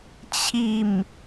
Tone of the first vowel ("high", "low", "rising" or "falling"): falling